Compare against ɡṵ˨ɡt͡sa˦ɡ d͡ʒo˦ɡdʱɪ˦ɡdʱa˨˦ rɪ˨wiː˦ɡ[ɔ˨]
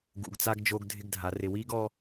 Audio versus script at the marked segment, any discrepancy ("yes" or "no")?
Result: yes